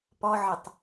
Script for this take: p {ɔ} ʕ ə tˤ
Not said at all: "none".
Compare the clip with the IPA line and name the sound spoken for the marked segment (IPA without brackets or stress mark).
ɔ